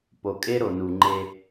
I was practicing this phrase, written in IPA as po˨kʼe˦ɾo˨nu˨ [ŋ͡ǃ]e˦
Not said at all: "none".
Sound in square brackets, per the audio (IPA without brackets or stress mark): ŋ͡ǃ